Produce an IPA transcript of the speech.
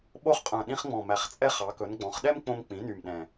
ɓo˦χqʼœ̃˨˩ ɗĩ˦χŋ͡mɔ̃˨˩ mæ˨˩χt͡sʼɛ˦ χɑ˩˧kɵ˩˧nɡ͡bɔ̃˩˧χɗɛ˦m k͡põ˦mk͡pĩ˩˥ny˨˩m ɗɛ̃˨˩

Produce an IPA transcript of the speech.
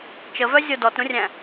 t͡ʃəvœzʲo dɔtɾũrʲæ̃

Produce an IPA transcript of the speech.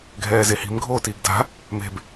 ɡʱɛːzehi̤m ɡʱoːtiːɡda̤ | me̤b

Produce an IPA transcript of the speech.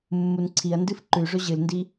mːunǀʰiɐ̯ndɨf ǃʉʐɵ ʑɨlndi

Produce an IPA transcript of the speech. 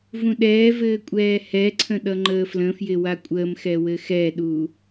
vũɗɛːvɘː kʷʼɛːhɛǀʰə̃ ɗʌŋ͡ǃəːflə̃fjɪ wakʷʼəːmxɛ wɘxɛɗu

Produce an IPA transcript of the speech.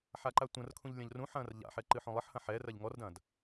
ħaǃatʷɐ̃rkʰũʎ lʲɐ̃ʎrũħɐ̃ːr ʎa̰ħɛ ǃɨħõlˠɘħhɐ̃ ħɛ rɐʎŋɔrdɐ̃ːd

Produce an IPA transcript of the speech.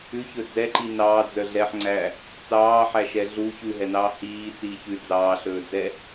ʉçɵ d͡zɛǃi nɑːd͡zœ ɮɛħŋ͡ǀæ | t͡sɑːħæʃɛ ɮu çʉɦɛnɑː hiːt͡siː çʉ d͡zɑːɬɵːd͡zɛ

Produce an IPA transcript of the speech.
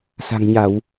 sa̤˨˩ŋɲa˧˩˨w

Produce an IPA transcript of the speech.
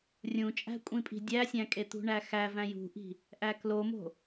rʲũt͡ʃʼæ̤kʷʼĩpʼi̤ dʲæsʲæ̃kʼe t̪ṳɳæxæ væ̃jṳʔi̤ | ʔæklomo̤

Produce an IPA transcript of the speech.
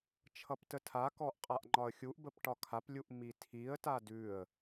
t͡ʃʰʌptətʰa kɔʔqʼaʔŋ͡ǃɒə̯xʲuʔ bəpʈɒkʰap lʲuʔmitʰiə̯ tadʉə̯

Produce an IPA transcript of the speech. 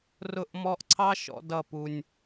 rʊ˧ʔmɔ˧ʔǀʰɑ˦ ʃɔ̰˧ dʌ˦˨pu˧nʲ

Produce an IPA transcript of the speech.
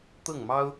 t̪ɤ˥˩ŋmɑ˥ʊ̯

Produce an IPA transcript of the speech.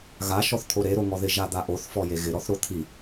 ɣa ʃɔθt̪ʰoɾe ɾoŋɔðɪ ʒad̪aʔoθ fɔjeɣɪ ɾɔθɾot̪ʰi

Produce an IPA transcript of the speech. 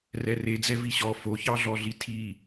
rɛred͡zɛ viɕɔ foçɑɮɔɮi tʰi

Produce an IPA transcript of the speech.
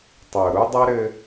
tˤɘ˨ʊ̯ ɾu˦dˤɛ˦ɾɘ˦

